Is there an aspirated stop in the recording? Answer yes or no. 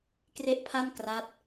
yes